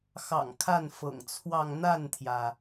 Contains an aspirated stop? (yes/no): yes